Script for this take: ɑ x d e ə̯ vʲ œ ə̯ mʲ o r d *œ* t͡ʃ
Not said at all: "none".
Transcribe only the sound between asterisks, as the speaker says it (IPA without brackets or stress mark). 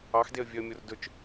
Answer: ɵ